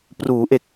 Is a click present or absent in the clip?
absent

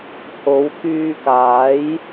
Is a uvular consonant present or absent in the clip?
absent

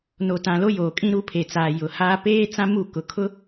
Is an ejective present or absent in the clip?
present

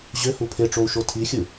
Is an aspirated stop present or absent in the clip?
present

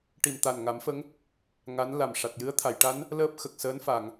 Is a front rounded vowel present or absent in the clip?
absent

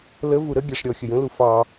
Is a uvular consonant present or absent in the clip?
absent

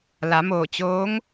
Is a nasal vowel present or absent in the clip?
absent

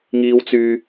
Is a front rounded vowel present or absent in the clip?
present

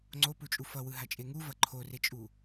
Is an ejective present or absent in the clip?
present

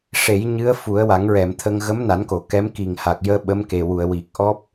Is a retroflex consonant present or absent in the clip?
present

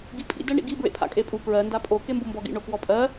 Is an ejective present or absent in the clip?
present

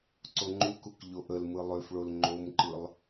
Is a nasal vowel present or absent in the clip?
absent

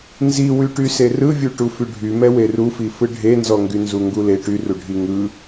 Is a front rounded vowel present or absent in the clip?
present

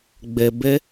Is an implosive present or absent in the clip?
absent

